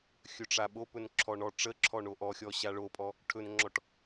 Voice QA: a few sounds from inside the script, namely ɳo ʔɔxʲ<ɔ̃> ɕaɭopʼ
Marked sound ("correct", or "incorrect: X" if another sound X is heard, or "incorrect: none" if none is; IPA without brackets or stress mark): incorrect: ɔ